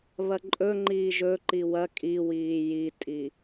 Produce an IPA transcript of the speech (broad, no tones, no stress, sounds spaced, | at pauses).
β ɐ ǃʼ ɵ ŋ͡ǃ iː ʒ ɵ ǃ i w ɐ kʼ i w iː j i tʼ i